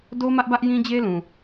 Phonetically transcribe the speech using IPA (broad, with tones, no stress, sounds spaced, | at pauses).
d o˦ m ä˦ ʔ b ä˦ ʔ j ĩ˦ d͡ʑ e˦ l ũ˨